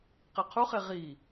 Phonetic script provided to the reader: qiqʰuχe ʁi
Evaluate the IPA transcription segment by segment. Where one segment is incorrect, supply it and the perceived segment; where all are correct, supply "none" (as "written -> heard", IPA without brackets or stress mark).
none